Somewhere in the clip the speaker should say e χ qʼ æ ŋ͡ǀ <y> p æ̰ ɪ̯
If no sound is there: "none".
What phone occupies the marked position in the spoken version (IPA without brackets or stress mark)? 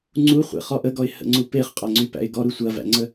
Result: y